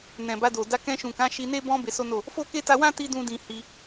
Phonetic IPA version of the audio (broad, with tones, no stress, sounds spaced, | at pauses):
n ɛ̃˨ b a˧ d o˨ d a˧ k ɛ̃˧ ʃ ũ˨ k ã˨˦ ʃ i˧ n e˦ b ɔ̃˧ b e˧ s o˦ n o˦˨ | f o˦ k e˦ t a˧ w ã˦ t i˧ d ũ˧ d ĩ˧ h i˧